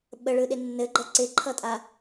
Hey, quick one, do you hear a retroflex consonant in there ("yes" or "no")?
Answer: yes